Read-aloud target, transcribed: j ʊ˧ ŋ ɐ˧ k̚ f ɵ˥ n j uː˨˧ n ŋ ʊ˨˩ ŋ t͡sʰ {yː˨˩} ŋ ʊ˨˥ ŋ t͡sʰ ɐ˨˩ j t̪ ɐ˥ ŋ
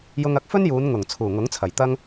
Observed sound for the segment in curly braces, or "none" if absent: uː˨˩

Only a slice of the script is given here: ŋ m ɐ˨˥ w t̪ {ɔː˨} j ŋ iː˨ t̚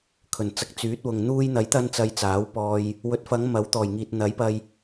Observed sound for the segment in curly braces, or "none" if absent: ɔː˨˩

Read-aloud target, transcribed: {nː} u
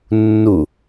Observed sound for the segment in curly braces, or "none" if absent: nː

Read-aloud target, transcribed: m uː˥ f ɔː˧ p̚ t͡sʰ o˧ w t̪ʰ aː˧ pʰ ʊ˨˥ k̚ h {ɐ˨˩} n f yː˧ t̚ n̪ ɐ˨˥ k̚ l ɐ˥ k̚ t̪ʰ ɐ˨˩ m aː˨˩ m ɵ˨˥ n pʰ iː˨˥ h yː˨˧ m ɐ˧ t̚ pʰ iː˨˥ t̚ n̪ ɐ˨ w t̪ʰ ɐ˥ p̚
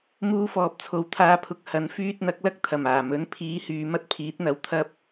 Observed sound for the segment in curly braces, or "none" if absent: ɐ˨˥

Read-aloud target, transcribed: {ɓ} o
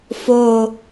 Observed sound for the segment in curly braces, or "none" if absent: f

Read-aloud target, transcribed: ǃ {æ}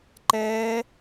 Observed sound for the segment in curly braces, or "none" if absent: ɛ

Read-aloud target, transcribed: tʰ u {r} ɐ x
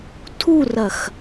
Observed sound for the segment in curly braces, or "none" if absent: r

